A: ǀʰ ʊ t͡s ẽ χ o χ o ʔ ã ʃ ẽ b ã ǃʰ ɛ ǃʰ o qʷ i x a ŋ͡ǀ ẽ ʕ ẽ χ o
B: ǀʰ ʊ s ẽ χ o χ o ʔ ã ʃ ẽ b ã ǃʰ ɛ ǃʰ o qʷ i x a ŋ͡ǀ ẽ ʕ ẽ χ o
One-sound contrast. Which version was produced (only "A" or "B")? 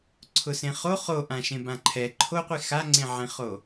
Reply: B